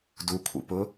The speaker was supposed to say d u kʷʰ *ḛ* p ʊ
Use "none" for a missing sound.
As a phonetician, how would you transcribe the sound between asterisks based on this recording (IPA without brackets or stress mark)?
ḭ